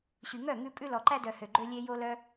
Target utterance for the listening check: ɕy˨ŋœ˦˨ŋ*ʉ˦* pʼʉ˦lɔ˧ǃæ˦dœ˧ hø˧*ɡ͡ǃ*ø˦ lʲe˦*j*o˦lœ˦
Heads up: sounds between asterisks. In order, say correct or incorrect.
incorrect, correct, correct

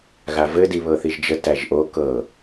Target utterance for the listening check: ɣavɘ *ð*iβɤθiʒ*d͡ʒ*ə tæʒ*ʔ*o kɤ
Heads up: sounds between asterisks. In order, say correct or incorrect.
incorrect, correct, correct

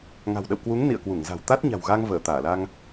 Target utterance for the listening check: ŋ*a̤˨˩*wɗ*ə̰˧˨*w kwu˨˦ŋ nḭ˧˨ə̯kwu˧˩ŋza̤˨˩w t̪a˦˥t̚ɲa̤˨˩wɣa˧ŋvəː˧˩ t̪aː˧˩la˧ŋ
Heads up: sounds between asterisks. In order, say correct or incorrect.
correct, correct

